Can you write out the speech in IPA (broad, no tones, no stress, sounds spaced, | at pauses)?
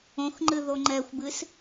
õ x ŋ͡ǃ ɨ ð o ŋ͡ǃ ɛ xʷ b ɨ s